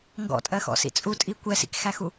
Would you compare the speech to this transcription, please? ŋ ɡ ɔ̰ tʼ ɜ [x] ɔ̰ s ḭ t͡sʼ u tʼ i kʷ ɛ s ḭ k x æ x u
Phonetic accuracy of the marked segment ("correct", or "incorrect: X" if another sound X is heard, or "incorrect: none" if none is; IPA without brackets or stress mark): correct